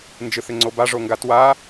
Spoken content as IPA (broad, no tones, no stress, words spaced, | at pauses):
nd͡ʒɯθɪŋ͡ǀoba ʐoŋɡatwa